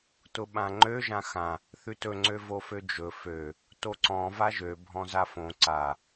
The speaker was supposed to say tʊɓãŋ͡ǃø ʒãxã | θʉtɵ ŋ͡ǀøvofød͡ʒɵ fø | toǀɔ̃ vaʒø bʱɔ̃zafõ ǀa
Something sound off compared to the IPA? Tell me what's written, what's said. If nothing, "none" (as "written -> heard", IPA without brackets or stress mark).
none